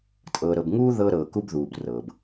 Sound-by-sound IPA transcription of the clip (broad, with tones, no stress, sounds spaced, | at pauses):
tʼ ɤː˨ ɾ ɤ˨ b ŋ uː˦ ð ɤ˦ ɾ ɤː˨ k u˦ b ð uː˨ b r ɤː˨ b